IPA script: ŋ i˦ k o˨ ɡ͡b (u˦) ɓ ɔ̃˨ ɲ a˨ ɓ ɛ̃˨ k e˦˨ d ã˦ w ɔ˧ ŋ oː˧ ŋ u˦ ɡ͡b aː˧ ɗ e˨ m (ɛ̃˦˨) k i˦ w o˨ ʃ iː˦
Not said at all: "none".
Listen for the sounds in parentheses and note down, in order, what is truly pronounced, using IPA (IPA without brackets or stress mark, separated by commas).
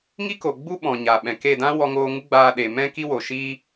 u˦, ɛ̃˦